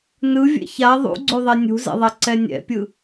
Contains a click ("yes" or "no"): yes